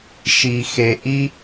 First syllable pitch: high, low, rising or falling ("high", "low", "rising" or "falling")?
high